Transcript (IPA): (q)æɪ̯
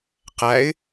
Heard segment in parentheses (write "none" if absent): q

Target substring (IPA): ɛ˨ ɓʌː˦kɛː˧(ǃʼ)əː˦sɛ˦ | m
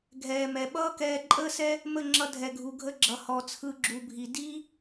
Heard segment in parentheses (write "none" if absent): ǃʼ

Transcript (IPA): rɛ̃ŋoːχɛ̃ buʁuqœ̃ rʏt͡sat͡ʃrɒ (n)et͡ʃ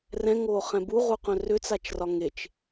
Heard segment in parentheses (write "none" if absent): ŋ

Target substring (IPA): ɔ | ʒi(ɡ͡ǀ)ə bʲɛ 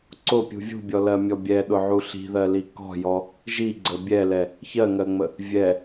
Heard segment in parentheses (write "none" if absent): ɡ͡ǀ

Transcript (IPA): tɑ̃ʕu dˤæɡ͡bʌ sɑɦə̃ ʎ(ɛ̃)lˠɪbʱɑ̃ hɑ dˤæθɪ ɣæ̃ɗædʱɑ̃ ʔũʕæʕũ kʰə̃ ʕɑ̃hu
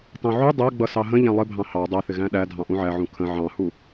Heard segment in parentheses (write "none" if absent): æ̃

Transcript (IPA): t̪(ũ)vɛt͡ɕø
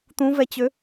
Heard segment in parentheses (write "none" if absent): ũ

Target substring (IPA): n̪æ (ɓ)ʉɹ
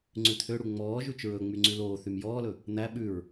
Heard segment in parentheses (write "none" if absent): ɓ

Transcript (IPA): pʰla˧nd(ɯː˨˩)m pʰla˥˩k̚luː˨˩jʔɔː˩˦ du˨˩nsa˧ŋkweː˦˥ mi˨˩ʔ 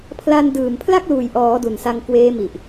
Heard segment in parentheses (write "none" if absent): ɯː˨˩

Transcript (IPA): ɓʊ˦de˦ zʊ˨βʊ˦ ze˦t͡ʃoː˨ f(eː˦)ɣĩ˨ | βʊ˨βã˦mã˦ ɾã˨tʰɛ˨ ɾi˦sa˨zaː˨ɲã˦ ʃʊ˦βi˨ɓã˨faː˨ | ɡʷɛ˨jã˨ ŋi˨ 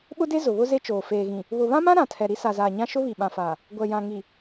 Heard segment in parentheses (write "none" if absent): eː˨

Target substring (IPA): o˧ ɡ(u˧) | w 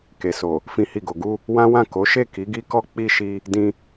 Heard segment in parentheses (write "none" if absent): u˧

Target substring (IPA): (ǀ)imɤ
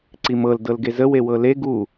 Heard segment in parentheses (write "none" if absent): ǀ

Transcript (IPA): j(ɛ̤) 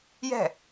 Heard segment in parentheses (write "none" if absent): ɛ̤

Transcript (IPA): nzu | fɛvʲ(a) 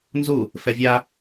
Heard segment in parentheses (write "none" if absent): a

